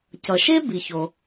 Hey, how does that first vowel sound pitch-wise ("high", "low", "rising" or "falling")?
low